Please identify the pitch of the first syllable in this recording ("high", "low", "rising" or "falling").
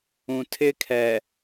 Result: low